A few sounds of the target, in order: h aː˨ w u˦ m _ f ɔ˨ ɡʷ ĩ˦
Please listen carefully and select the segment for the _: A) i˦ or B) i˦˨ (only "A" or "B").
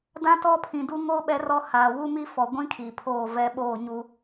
A